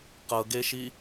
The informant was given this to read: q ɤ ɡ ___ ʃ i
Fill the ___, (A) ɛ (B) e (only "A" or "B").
B